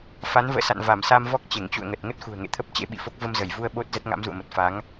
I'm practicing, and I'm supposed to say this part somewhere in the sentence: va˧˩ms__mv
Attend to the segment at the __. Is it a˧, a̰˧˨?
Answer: a˧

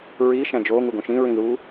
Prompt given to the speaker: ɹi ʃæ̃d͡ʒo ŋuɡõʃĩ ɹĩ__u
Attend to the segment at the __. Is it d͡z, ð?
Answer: ð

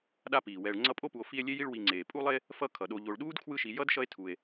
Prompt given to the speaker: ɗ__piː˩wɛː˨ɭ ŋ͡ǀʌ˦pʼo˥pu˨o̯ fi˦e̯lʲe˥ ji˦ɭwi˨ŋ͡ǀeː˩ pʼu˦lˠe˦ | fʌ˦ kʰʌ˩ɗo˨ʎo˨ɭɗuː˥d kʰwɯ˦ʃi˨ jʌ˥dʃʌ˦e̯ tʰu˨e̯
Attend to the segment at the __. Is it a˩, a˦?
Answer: a˦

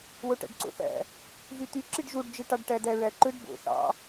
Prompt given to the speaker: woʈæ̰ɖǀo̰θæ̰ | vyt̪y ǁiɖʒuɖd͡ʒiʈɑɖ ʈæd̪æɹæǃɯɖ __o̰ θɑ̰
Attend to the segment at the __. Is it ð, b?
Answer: b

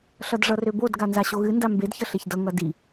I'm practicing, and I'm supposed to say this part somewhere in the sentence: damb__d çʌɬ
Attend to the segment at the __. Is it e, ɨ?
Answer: e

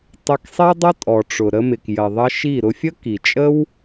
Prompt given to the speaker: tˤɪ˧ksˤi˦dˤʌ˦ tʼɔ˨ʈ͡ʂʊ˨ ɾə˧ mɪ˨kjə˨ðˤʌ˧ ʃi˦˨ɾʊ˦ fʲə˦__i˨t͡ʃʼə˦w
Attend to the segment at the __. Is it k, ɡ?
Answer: k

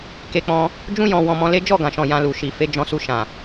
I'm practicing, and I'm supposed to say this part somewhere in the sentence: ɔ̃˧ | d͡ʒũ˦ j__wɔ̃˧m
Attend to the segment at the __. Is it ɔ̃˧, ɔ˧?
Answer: ɔ̃˧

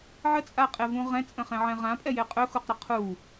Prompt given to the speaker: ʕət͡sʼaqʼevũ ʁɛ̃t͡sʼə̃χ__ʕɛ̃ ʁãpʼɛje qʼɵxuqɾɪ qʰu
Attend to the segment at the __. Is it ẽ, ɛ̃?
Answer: ẽ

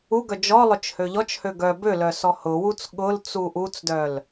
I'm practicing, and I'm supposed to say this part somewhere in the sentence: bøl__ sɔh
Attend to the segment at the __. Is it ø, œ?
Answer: œ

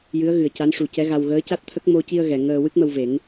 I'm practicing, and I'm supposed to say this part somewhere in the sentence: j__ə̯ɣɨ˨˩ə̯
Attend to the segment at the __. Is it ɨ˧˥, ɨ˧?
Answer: ɨ˧˥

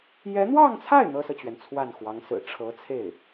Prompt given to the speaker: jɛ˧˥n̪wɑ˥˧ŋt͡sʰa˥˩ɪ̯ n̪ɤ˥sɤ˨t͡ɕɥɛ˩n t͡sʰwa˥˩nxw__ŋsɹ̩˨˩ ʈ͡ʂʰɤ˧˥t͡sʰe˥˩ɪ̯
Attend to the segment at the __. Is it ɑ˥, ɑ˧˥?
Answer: ɑ˧˥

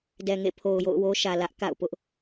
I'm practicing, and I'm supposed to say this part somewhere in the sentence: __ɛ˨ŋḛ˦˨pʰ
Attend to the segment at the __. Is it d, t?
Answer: d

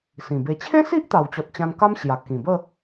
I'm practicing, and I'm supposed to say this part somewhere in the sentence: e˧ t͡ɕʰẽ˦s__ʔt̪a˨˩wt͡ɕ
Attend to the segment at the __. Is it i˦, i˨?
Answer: i˦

